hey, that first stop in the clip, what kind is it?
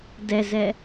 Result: plain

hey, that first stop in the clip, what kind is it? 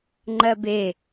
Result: click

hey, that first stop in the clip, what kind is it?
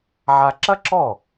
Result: click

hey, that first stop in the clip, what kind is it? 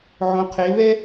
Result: aspirated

